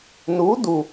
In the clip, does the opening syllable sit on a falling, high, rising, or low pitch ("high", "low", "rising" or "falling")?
rising